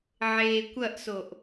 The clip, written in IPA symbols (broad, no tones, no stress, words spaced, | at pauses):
ʕeːkʷɐʔsoʔ